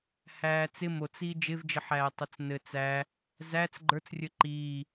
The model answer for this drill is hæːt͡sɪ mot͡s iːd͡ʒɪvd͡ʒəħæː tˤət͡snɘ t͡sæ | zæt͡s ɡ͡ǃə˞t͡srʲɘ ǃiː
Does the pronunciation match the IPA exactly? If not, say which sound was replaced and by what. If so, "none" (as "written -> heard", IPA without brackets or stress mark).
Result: none